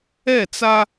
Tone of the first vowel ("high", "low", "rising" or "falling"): falling